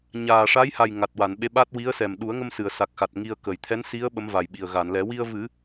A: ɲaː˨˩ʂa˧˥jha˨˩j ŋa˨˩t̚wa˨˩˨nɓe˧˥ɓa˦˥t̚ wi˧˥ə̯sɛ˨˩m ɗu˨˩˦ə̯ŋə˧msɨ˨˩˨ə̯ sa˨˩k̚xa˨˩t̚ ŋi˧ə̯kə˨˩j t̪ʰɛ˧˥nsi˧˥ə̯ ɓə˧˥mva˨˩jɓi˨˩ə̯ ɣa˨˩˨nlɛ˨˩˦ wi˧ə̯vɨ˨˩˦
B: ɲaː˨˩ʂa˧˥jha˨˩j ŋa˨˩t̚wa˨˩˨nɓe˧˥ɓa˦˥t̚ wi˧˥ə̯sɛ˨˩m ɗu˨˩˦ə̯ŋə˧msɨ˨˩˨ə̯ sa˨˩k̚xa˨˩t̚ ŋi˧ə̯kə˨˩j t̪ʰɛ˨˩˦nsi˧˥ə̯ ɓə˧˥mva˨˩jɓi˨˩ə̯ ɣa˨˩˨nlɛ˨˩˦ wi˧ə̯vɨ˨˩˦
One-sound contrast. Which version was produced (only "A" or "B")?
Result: A